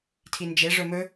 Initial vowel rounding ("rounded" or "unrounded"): unrounded